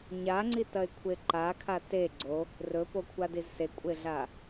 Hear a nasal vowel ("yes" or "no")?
no